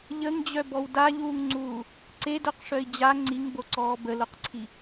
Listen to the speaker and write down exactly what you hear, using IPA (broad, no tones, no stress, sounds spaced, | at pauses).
ʎ ə ŋ d͡ʑ œ b ɔ w d a ʎ uː ŋ ŋ͡ǀ uː | ǀ e d œ q ʂ œ i̯ d͡ʑ a ŋ͡ǀ i ŋ b o ǀ ɔː b ə l o q ǀʰ i